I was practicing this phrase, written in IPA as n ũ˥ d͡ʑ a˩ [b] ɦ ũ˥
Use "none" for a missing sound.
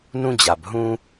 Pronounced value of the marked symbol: b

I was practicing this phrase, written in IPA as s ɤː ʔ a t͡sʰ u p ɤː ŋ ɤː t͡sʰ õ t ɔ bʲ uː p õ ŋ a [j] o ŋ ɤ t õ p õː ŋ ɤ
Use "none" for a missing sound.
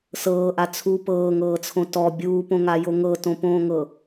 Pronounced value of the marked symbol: j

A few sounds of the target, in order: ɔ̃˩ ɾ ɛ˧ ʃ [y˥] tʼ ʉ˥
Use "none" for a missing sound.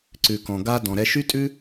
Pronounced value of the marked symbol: y˥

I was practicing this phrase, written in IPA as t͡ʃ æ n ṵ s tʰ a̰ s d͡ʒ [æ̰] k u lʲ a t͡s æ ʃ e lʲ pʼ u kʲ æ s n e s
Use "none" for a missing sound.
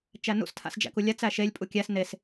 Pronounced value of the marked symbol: æ̰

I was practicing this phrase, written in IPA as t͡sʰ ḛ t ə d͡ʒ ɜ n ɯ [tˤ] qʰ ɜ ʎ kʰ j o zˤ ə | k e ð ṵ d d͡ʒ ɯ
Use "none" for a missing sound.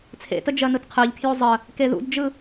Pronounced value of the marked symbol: t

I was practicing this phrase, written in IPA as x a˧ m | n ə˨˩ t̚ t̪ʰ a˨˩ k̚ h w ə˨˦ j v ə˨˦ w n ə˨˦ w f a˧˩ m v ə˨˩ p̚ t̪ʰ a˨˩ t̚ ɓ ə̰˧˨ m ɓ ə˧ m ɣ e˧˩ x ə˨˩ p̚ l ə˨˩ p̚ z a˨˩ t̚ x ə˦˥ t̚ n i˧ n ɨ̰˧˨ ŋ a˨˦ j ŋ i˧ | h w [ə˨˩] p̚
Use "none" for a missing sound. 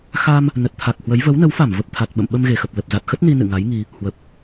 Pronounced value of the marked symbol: ə˨˩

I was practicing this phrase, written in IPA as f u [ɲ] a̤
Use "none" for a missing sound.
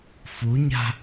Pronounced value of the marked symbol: ɲ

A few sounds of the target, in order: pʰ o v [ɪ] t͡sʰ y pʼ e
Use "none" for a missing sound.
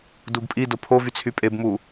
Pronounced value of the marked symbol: y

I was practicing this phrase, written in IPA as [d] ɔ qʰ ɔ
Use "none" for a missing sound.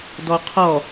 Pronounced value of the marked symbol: d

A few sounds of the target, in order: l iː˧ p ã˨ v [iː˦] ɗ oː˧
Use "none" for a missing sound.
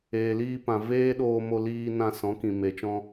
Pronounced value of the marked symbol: eː˦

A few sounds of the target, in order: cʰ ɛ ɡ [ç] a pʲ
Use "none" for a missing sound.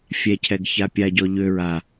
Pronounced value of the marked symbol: ç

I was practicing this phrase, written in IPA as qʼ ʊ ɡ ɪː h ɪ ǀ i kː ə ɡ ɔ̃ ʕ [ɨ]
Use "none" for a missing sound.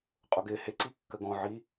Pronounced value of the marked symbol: i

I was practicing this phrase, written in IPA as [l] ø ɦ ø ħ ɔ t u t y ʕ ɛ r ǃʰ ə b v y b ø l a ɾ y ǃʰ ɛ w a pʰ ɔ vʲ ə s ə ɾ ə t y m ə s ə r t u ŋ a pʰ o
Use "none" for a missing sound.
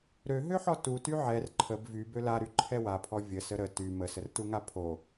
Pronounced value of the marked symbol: ɾ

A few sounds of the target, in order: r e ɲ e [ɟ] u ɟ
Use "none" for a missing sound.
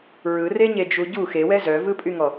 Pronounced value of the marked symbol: d͡ʒ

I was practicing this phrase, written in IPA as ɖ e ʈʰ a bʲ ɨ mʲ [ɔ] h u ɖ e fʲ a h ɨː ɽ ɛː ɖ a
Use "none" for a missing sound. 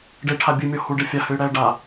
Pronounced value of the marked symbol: ɔ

